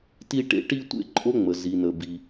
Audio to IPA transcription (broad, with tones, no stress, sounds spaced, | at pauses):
t i˥ ʈ ḛ˥ ʈ i˥ tʷ ḛ˥ ǃʼ o˥ ŋ͡m ə˩ z i˩ n ə˩ b i˩